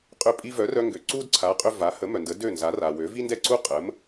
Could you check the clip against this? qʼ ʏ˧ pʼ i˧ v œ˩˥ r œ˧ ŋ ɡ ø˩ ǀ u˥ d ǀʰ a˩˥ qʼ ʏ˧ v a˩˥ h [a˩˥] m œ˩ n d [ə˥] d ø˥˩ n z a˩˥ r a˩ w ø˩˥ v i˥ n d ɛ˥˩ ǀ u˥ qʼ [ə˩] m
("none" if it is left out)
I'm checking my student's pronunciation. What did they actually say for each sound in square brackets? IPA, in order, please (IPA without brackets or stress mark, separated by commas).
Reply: ə˩˥, ə˩˥, ə˩˥